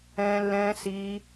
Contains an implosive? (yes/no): no